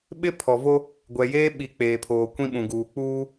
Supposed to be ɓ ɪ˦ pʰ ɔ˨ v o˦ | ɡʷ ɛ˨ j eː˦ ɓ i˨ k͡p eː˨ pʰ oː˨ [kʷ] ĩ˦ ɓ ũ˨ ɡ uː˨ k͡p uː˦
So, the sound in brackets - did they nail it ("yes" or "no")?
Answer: yes